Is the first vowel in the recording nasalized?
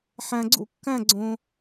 yes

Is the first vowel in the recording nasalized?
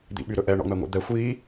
no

